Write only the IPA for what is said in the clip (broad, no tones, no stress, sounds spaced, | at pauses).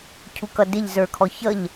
cʰ u k ʌ d ɪ ʎ z ə˞ kʰ ɔ ç ʌ ʎ